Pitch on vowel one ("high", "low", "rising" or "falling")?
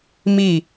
falling